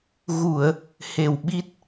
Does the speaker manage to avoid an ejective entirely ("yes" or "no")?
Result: yes